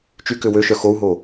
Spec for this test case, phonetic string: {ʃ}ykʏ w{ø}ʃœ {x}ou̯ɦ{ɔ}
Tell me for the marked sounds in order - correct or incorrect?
incorrect: t͡ʃ, correct, correct, incorrect: o

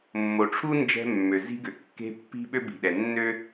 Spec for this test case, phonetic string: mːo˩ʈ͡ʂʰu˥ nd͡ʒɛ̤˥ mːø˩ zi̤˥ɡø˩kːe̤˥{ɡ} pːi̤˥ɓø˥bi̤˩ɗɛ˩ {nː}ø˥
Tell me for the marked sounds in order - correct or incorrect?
incorrect: none, correct

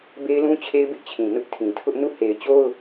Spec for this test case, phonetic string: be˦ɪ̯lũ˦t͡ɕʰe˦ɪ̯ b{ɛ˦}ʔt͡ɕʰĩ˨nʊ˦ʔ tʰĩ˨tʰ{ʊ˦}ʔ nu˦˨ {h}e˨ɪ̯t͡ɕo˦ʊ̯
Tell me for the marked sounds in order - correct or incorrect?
incorrect: ɪ˦, correct, correct

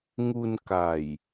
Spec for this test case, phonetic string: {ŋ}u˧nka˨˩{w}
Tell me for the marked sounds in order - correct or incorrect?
correct, incorrect: j

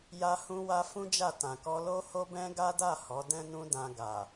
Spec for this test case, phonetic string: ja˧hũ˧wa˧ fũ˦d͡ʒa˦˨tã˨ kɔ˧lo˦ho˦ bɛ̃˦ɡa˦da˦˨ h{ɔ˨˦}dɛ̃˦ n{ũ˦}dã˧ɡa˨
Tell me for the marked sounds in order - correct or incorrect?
correct, correct

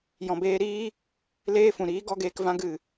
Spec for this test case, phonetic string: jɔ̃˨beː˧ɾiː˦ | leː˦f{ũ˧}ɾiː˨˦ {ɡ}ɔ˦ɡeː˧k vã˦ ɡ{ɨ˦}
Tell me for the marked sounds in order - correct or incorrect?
incorrect: ũ˨, correct, incorrect: ɨ˦˨

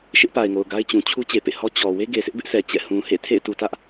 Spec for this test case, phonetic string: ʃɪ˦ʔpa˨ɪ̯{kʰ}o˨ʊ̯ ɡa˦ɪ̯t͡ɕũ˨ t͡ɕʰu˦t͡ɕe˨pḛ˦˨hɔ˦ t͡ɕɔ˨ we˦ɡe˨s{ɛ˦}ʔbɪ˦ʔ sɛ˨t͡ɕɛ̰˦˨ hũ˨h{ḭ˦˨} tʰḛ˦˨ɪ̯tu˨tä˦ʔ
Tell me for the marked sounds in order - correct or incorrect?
incorrect: ŋ, incorrect: ɪ˦, incorrect: ḛ˦˨

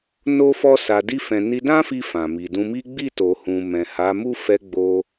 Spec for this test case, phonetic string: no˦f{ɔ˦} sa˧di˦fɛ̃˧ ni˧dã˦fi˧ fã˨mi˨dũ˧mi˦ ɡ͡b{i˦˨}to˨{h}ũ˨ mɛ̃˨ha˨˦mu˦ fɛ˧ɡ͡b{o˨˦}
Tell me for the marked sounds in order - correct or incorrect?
correct, correct, correct, incorrect: o˧

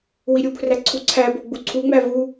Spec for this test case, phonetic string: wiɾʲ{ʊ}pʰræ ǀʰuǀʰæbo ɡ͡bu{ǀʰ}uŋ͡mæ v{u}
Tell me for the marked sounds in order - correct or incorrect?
incorrect: u, correct, correct

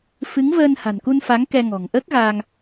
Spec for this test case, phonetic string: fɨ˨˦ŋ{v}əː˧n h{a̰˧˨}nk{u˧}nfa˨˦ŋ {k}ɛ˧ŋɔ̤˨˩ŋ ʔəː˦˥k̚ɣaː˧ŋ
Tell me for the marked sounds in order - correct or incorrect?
correct, incorrect: a̤˨˩, correct, correct

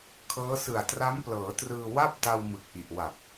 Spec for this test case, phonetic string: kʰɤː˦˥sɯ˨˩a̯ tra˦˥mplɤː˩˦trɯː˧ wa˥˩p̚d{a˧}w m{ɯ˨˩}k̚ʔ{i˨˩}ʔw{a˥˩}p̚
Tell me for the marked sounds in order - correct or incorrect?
correct, correct, correct, incorrect: a˨˩

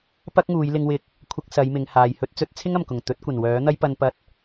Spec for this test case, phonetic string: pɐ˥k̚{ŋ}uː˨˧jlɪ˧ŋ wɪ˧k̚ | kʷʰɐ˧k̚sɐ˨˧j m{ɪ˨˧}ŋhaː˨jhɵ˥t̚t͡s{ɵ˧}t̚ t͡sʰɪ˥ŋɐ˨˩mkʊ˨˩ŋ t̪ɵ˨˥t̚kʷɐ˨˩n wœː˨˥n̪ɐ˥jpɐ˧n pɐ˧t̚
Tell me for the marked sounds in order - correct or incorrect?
correct, correct, incorrect: ɵ˥

